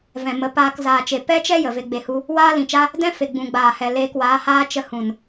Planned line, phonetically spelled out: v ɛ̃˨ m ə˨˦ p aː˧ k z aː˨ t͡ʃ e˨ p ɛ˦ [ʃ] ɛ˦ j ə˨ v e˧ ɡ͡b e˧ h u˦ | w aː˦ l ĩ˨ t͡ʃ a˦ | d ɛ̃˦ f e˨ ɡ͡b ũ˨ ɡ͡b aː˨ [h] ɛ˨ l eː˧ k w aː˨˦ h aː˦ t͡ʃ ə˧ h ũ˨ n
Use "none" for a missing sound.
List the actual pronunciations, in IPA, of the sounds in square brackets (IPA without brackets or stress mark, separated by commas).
t͡ʃ, h